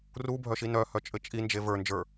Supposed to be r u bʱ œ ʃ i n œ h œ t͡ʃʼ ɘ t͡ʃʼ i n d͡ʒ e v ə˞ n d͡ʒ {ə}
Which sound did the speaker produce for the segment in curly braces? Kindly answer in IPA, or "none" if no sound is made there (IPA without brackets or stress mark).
ə˞